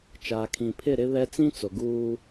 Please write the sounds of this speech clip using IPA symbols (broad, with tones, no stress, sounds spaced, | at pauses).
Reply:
t͡ʃ aː˨ kʰ ĩ˨ pʰ ɪ˦˨ ɾ ɪ˦ β ɛ˦ t͡s ĩ˦ t͡s o˨ ɡ uː˦